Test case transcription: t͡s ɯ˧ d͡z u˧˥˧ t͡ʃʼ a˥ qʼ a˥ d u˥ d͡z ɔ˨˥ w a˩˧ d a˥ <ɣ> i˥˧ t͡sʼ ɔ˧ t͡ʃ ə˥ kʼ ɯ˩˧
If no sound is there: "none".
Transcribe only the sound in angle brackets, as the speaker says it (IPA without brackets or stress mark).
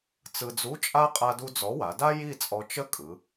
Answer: j